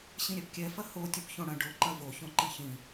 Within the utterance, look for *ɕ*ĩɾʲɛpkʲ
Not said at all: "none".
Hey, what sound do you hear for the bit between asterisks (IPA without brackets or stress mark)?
ɕ